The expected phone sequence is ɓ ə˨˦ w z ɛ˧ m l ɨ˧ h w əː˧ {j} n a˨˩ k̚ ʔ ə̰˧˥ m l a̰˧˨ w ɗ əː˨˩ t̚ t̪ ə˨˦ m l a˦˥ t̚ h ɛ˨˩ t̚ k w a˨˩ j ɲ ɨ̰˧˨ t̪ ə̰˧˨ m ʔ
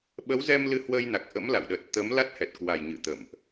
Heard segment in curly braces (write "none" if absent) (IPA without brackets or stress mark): j